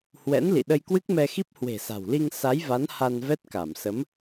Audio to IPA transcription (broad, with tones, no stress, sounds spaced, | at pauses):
h w ɛ̰˧˥ n l ḭ˧˨ ɗ ə˧ j k w ɨ˦˥ k̚ m ɛ˧ x i˦˥ p̚ h w e̤˨˩ s a̤˨˩ w l i˧ ŋ s a˨˦ j v a˨˦ n h a˧ n v ɛ˦˥ t̚ k a˧˩ m s ə˨˦ m